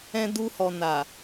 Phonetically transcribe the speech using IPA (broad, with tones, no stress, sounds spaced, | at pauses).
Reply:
ɛ̃˧ d u˧ h ɔ˨ n a˨